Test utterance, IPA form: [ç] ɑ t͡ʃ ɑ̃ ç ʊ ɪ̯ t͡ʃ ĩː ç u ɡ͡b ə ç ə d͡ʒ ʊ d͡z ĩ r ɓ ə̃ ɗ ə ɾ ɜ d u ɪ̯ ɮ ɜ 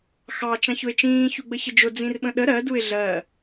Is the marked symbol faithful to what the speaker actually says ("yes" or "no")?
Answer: no